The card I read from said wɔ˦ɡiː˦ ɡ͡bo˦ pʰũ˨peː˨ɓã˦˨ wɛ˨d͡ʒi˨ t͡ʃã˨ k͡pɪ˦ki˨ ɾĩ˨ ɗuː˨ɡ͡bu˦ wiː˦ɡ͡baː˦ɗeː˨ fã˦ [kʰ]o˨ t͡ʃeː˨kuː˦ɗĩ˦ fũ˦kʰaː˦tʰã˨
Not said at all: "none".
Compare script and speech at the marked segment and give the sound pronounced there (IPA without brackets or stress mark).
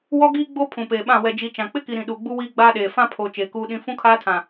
pʰ